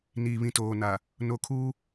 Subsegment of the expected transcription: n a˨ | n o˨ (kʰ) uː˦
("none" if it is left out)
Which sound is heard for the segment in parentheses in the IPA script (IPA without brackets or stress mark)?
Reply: kʰ